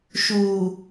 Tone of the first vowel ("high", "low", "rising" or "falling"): low